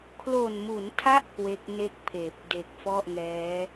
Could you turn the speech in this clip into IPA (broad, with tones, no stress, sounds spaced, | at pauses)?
kʰ l o˨˩ n m u˩˦ n tʰ a˦˥ ʔ k w e˦˥ k̚ n e˥˩ k̚ pʰ eː˨˩ p̚ d e˨˩ k̚ f ɔ˥˩ ʔ ŋ ɛː˦˥